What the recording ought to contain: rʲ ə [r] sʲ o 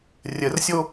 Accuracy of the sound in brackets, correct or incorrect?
correct